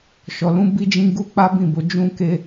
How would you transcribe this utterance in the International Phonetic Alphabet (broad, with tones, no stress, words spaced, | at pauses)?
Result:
ʃɔ˨lũ˨˦ bi˧d͡ʒĩ˧ ɡu˦k͡pa˦bĩ˦˨bo˧ d͡ʒũ˧ke˧